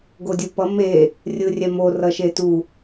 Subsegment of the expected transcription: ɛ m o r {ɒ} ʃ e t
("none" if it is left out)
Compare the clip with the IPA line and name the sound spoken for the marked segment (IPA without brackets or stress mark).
ʌ